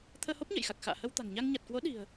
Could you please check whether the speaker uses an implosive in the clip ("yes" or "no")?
yes